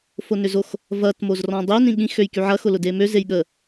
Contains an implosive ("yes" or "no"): yes